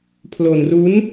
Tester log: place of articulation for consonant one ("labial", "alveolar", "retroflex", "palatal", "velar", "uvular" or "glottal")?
labial